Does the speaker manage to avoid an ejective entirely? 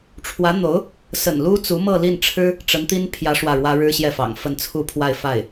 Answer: yes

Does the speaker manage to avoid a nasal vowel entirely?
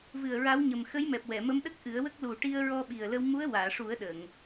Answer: yes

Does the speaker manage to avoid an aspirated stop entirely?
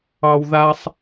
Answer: yes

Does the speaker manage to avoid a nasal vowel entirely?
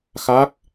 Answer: yes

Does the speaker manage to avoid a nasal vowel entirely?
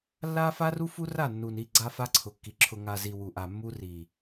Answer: yes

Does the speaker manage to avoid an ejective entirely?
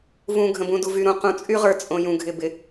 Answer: no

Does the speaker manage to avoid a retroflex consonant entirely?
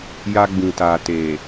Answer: yes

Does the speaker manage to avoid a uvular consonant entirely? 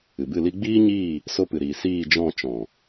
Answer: yes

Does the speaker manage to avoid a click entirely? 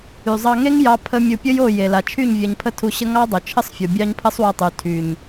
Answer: yes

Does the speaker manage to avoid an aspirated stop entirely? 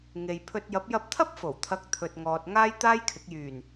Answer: no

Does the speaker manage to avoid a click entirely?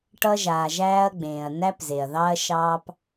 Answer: yes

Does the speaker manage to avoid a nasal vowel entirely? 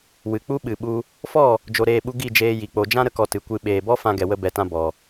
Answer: no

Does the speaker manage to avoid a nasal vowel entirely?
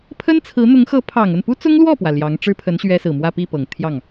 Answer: yes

